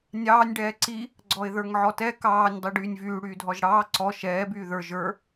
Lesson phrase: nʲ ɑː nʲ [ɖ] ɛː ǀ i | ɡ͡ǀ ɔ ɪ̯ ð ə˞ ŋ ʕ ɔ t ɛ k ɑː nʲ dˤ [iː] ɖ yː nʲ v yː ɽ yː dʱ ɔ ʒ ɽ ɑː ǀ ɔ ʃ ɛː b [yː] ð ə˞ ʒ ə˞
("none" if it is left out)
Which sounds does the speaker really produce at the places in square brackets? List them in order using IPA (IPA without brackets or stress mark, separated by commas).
ɖ, i, yː